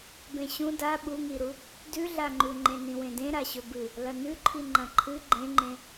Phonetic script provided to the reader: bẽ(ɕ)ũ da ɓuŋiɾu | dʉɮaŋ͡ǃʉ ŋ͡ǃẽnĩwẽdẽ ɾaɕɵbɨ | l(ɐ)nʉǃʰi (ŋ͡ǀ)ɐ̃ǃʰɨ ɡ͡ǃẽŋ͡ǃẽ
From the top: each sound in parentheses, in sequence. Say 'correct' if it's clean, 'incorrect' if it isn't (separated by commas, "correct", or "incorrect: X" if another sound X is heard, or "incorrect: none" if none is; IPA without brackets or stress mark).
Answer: correct, correct, incorrect: ŋ͡ǃ